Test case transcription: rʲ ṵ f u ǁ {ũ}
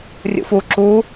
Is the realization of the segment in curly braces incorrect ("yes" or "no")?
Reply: yes